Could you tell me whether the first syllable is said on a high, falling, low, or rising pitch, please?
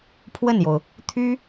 falling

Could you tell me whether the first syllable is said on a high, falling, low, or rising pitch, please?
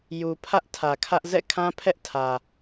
low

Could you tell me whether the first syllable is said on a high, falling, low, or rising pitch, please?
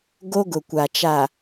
high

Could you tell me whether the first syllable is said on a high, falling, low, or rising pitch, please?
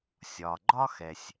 low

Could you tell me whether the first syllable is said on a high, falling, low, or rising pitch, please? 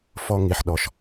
high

